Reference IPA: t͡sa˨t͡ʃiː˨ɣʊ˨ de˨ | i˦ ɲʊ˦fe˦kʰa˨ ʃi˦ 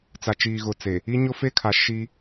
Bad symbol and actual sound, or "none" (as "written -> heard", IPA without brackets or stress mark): d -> t͡s